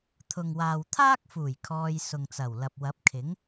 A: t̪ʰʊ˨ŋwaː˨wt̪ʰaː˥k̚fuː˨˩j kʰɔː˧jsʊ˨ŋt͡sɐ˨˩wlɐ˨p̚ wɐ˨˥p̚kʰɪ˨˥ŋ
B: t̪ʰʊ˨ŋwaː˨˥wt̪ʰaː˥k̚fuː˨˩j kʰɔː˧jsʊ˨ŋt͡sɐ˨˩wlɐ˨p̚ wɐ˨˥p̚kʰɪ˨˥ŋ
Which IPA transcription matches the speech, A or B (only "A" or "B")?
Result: A